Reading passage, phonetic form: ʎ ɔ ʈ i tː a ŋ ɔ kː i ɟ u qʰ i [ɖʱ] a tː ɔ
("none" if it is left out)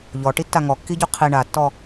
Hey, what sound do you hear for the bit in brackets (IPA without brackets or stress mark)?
ɳ